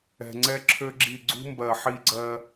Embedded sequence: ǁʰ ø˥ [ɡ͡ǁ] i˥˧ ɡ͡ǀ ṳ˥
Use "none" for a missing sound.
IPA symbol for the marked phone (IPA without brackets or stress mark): ɡ͡ǁ